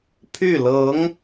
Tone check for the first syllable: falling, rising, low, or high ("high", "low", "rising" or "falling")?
falling